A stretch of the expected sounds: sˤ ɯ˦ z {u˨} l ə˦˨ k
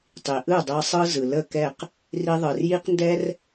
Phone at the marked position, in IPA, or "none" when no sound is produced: ɯ˨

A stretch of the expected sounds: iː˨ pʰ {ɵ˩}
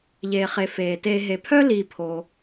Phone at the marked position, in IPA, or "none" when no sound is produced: o˩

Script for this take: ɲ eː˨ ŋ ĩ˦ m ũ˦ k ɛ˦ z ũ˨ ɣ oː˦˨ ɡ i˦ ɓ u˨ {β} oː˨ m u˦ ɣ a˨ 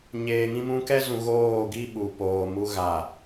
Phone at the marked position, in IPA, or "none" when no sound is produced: p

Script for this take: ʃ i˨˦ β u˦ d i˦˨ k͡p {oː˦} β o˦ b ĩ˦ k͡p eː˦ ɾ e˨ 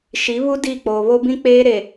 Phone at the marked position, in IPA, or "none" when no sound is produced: oː˨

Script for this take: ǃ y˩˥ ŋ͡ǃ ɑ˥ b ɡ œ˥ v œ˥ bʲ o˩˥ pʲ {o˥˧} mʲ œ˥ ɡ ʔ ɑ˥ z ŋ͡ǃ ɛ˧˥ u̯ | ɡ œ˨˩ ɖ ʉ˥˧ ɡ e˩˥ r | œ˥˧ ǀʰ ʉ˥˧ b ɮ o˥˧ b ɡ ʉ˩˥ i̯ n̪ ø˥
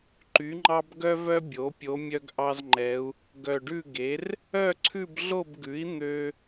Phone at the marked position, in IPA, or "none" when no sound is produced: o˧˥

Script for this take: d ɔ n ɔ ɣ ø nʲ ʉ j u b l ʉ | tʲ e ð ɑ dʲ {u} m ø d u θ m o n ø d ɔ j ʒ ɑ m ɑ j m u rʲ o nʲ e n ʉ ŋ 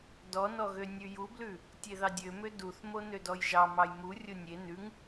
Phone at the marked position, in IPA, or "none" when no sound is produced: ø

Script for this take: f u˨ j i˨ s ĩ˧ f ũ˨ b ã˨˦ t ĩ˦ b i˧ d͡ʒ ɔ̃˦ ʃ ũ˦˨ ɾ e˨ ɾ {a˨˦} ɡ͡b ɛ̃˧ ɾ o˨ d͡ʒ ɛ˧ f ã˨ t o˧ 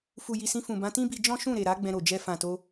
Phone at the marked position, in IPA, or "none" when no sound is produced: a˨˦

